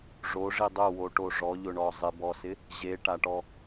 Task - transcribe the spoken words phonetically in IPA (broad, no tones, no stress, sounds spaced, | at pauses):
ʐ o ʐ i dˤ ʊ w o ʈ o ʐ ɔ ʎ ʊ ɳ ɔ zˤ ɪ b ɔ s ɪ | ʑ e ʈ a ʈ ɔ